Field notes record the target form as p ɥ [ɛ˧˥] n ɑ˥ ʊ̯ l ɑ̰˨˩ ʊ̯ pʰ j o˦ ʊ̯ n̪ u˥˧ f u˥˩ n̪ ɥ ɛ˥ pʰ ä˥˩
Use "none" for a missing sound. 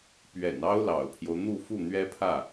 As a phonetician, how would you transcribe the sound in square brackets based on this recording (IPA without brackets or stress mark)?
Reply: ɛ̰˨˩